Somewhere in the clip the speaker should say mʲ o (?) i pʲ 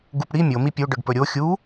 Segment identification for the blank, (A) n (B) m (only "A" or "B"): B